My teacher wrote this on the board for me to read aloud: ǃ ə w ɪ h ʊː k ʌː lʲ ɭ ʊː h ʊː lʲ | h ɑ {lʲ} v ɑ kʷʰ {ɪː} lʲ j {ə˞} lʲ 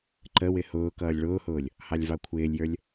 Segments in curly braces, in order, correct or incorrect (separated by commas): correct, correct, correct